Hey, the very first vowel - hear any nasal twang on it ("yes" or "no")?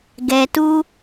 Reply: no